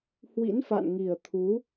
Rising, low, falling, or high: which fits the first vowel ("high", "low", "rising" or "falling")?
rising